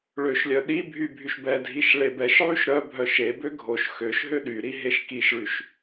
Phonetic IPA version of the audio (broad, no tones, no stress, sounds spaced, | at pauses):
ɭ ø ʃ lʲ œ ɗ i bʱ y bʱ y ʃ b ɛ dʱ i ʃ ɭ e b ɛ ʃ ʕ y ʃ ɾ œ bʱ œ ʃ e b ø ɡʱ o ʃ x ø ʃ ɦ ø ɗ y ɾ i ɦ e ʃ k i ʃ ɭ y ʃ